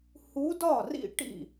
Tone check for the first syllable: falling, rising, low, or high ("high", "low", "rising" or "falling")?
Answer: rising